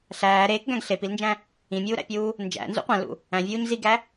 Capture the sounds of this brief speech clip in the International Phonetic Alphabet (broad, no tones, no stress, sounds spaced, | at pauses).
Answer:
ɬ æː ɾ eː k ɡ æ̃ ɡ ɬ e p i l n d͡ʒ æ̃ | ĩ mʲ uː ɾ æ̰ pʲ uː | n d͡ʒ æ̰ n z ṵ qʷ æ̃ l ṵ | æ̃ vʲ uː ɲ z i ɡ æ